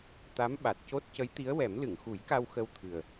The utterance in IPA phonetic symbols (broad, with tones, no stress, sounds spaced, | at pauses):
t̪ a˧˥ m ɓ a˨˩ t̚ c o˦˥ t̚ c ə˧˥ j t̪ i˧˥ ə̯ w ɛ˨˩˦ m l ɨ˨˩˨ ŋ x u˨˩˦ j k a˧ w x ə˧ w t̪ʰ ɨ˨˩ ə̯